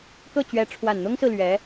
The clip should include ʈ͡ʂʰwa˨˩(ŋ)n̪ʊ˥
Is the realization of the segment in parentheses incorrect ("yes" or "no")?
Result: yes